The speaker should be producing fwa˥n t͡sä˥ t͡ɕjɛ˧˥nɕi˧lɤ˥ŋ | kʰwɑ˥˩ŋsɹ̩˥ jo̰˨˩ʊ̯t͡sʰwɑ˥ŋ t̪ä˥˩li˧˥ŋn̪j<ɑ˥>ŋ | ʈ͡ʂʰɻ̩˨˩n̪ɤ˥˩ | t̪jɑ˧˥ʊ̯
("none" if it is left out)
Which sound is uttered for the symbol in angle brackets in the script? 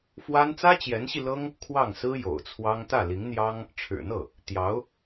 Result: ɑ˥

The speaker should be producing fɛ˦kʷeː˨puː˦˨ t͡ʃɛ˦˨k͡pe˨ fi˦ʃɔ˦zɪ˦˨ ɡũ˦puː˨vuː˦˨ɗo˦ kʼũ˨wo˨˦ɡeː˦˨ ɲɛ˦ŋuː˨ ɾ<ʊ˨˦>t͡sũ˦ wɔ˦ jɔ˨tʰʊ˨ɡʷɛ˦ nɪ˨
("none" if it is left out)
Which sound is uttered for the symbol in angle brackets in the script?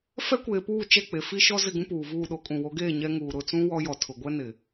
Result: ʊ˦˨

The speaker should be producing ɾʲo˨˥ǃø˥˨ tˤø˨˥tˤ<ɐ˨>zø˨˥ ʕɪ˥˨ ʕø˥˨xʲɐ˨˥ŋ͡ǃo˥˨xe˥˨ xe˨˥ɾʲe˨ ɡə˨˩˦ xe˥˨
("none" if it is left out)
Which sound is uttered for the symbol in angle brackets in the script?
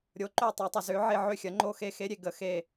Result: ə˨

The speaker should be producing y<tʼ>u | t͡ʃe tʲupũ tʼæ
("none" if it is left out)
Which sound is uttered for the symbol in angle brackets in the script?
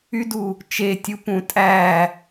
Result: d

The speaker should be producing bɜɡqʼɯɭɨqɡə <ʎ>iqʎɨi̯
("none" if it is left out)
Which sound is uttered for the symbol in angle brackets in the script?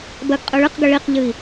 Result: ɭ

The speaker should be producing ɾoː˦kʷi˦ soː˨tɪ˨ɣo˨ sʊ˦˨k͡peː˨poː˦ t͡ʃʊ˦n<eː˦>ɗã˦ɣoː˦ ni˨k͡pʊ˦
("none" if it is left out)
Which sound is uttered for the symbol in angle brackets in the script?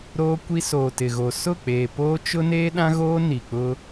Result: eː˦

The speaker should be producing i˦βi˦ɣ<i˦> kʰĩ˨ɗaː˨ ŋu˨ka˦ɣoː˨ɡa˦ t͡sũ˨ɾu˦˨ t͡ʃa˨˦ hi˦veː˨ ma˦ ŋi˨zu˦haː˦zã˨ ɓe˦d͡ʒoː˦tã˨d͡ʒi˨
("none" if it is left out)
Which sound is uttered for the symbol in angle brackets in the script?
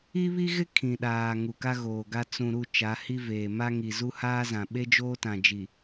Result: ɪ˦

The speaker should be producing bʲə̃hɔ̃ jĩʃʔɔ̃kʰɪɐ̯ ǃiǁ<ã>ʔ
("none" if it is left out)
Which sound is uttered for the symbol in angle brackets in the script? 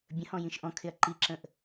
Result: ə̃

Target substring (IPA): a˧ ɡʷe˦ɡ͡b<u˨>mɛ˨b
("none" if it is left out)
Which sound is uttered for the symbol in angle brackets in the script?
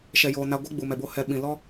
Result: u˨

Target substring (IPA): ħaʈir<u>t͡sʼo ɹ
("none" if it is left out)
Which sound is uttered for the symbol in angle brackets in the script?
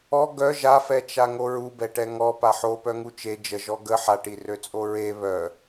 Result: ø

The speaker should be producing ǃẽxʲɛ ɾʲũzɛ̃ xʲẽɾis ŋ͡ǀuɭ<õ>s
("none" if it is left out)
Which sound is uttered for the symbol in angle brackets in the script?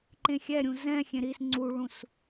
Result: ũ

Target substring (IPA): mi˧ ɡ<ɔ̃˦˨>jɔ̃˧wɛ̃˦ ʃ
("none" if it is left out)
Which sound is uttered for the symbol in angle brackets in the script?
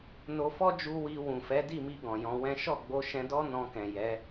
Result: ɔ̃˨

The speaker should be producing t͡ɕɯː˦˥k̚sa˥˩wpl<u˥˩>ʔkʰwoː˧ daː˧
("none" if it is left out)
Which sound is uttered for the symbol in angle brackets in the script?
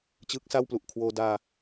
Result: u˨˩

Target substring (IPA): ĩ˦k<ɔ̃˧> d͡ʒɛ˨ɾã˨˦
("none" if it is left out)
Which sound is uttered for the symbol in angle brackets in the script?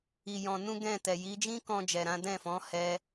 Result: ɔ̃˧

